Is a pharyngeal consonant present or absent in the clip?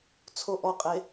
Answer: absent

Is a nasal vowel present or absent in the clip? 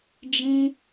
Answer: present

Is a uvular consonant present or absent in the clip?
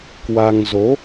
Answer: absent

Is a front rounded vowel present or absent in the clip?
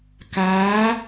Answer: absent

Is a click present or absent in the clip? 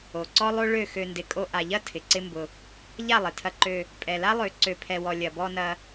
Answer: present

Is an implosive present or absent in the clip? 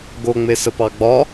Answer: absent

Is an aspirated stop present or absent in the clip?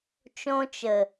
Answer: absent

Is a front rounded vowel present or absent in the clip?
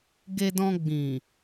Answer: absent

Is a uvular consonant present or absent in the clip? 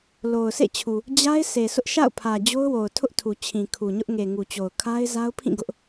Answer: absent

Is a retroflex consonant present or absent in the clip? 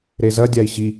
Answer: absent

